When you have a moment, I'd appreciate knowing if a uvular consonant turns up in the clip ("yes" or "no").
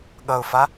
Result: no